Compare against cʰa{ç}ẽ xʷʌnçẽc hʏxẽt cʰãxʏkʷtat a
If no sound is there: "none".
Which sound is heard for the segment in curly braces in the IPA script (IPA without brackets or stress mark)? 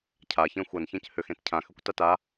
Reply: ç